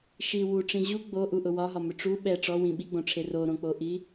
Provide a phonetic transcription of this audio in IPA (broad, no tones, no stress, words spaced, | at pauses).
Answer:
ʃi wuʈ͡ʂĩ ʑu ɡ͡boʔuʔʊ wɒɦɒmʏ ʈ͡ʂu ɓɛ ʈ͡ʂɔwĩ ɓiɡ͡bõʈ͡ʂʰe roɾõk͡poʔi